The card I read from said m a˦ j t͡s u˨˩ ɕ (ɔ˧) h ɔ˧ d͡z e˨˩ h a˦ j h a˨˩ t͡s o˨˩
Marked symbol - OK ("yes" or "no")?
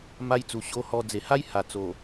no